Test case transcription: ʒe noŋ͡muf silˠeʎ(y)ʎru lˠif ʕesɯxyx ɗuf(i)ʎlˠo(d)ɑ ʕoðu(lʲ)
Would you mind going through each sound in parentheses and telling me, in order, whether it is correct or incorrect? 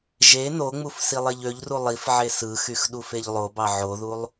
incorrect: ø, incorrect: e, incorrect: b, incorrect: lˠ

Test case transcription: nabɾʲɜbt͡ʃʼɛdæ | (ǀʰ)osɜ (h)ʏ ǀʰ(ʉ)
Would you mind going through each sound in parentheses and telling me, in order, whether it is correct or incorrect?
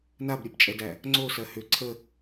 incorrect: ŋ͡ǀ, correct, incorrect: ə

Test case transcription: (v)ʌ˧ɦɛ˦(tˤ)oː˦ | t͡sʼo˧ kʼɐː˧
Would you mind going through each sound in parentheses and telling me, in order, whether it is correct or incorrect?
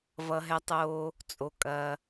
correct, correct

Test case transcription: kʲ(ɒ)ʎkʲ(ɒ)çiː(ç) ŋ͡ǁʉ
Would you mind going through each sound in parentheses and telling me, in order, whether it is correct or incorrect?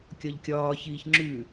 correct, incorrect: ɒː, correct

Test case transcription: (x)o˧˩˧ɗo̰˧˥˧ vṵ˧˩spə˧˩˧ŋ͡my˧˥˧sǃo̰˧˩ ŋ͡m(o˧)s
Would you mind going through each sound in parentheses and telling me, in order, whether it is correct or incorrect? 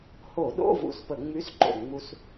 incorrect: h, incorrect: u˧

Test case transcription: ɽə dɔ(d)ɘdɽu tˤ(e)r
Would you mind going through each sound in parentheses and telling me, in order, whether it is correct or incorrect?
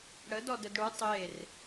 correct, correct

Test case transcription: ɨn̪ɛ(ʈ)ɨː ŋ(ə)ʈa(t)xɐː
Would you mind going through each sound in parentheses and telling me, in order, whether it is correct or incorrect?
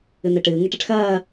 correct, incorrect: ɨ, incorrect: ʈ

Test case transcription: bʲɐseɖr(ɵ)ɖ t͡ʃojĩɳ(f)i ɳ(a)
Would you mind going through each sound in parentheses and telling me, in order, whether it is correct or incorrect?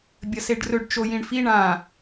correct, correct, incorrect: ã

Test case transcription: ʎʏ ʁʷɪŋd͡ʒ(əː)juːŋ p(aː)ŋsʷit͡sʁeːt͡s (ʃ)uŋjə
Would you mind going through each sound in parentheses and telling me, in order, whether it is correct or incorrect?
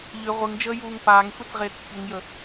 correct, correct, incorrect: ç

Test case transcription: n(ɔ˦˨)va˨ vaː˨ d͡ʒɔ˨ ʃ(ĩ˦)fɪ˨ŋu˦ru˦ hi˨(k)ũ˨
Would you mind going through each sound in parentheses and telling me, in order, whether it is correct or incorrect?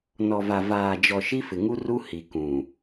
incorrect: ɔ˨, incorrect: i˦, correct

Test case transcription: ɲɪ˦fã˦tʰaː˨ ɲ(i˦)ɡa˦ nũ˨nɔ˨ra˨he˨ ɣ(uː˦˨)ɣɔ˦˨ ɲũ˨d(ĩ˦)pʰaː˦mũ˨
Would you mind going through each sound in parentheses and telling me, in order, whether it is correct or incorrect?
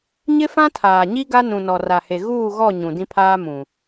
correct, correct, correct

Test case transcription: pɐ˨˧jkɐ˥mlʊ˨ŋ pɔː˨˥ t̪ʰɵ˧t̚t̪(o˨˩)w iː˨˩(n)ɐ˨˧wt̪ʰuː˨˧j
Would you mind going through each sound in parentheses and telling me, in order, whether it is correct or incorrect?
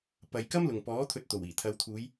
correct, incorrect: t̪ʰ

